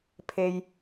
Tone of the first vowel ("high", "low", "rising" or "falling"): low